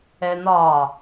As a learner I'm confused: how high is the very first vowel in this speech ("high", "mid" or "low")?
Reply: mid